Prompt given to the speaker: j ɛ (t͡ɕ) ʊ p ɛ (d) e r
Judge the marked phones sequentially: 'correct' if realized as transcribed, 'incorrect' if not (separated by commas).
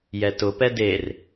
incorrect, correct